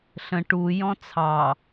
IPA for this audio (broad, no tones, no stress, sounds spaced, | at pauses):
ɬ ə̃ ʈ u j ɔ̃ t͡sʰ ɑ